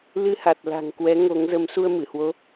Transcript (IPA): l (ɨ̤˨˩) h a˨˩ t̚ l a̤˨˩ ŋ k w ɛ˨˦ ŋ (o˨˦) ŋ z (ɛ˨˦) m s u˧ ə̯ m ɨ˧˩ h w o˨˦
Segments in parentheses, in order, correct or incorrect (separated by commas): incorrect, correct, incorrect